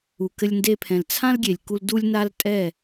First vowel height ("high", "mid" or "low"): high